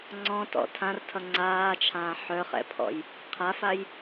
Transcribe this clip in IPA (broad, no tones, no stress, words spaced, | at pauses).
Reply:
ŋ͡ǀɔ̃tɔ̰ tʰãrtʰʌ ŋ͡ǀaːt͡ʃʰãː ħœχɛ̰pʰɔ̰j | qʰafaj